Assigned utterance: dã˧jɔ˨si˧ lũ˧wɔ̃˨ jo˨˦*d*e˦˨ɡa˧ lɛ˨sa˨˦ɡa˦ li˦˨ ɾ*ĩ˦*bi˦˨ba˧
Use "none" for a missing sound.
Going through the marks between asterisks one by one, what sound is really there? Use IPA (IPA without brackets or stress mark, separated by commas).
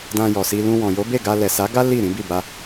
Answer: b, ĩ˨˦